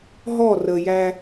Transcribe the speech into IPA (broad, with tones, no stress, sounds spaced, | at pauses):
ɦ ɔ˦˨ r ə˨ j æ˦